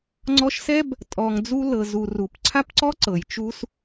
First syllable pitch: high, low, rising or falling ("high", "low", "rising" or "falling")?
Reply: high